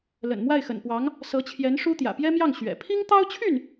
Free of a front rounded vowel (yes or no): no